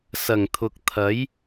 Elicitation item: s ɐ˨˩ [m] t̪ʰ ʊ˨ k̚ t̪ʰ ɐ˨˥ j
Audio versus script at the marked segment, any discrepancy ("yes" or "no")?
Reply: yes